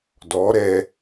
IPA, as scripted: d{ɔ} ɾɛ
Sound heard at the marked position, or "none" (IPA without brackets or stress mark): ɔ